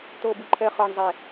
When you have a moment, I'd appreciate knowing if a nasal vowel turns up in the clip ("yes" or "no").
no